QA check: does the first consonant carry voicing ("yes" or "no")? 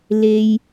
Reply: yes